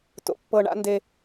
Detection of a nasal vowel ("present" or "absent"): absent